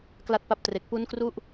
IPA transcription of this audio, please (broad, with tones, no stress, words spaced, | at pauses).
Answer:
kla˥˩t̚pa˥˩p̚tre˨˩k̚ pu˦˥nkru˦˥ʔ